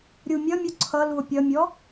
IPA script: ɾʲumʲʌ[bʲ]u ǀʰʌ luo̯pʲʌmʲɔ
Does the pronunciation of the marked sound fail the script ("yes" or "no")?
yes